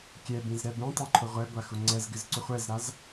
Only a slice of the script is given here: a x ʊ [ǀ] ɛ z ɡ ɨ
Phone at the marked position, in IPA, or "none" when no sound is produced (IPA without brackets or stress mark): ŋ͡ǀ